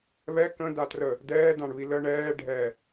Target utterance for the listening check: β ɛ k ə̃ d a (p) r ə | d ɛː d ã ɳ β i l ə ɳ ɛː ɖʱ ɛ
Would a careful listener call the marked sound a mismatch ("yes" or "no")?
yes